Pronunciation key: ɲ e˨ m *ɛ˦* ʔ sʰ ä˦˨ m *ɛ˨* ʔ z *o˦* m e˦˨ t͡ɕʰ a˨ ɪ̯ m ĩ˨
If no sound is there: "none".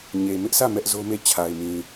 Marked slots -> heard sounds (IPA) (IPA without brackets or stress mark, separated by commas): ɪ˦, ɛ˦, o˦